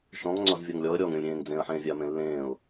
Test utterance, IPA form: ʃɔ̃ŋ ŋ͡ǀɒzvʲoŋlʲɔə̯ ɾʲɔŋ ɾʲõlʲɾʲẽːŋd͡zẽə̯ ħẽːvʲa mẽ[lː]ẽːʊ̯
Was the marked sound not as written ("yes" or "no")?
no